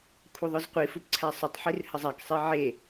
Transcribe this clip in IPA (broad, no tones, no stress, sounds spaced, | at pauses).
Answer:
kʷʰ œ ðˤ œ z qʷ i f u p ǀʰ æ sˤ ʏ tˤ ħ i r h ə zˤ æ k sˤ e ʕ e